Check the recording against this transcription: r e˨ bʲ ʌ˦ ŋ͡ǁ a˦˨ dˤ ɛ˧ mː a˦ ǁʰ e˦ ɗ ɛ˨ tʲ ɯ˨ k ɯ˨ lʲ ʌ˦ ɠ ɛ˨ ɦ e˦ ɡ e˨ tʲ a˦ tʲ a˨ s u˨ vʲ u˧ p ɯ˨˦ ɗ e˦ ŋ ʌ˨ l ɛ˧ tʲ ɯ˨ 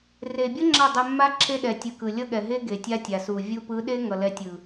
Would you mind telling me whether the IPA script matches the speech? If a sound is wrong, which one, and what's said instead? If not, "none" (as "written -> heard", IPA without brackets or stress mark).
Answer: none